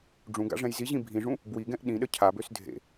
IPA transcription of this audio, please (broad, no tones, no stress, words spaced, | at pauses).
ɖ͡ʐũɡa̰ʐɛ̃j ziʑĩ bʱĩʐũ | bwiɡɛ̃ʔ ɗĩɗə cʰabøs dʱḛ